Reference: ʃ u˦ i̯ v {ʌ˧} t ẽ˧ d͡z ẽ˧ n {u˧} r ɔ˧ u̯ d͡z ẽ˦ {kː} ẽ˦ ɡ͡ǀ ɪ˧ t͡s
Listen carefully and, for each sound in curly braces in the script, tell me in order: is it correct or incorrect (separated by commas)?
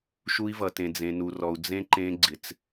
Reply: correct, correct, incorrect